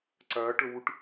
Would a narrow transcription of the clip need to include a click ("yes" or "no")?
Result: yes